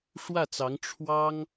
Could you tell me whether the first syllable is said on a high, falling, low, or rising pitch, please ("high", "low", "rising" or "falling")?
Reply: falling